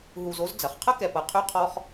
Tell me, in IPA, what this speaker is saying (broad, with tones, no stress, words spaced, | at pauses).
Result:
ɦu˨zo˦z d͡zɐ˩χqʰə˥kɛ˨pɐ˨ qʰy˦qʰɔ˦χ